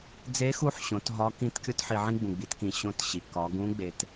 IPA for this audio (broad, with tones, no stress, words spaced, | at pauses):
d͡ze˧˥xu˧˥ħɕõ˩˧t ɦɒ˧˥ kĩ˧˥t kʲo˥tħi˧ʕĩ˥ ɡ͡bũ˩ɡ͡bi˩˧tkĩ˩ ɕõ˧˥tɕi˩ kɒ˩˧ɡũ˧˥ɡ͡be˩t